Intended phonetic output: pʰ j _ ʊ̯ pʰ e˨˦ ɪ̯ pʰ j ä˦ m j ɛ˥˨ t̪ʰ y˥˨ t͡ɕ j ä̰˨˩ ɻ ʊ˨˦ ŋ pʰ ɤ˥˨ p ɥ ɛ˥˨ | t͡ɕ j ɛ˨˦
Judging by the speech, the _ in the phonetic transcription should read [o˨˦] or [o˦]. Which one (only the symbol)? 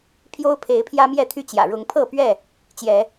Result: o˦